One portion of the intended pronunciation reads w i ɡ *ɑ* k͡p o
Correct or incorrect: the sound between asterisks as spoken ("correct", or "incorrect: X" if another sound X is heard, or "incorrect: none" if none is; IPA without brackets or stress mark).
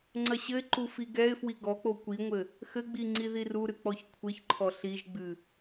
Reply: incorrect: ɔ